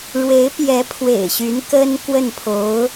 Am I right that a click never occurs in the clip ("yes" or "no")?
yes